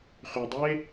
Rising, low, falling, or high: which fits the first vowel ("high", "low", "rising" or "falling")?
low